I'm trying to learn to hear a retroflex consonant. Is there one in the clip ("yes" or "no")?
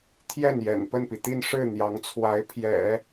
yes